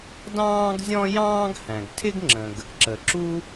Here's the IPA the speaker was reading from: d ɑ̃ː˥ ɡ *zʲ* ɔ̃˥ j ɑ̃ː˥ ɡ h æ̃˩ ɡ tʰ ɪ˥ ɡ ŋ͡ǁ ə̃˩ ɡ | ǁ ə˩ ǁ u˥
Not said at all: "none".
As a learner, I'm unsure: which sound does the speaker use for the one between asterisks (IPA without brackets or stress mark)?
zʲ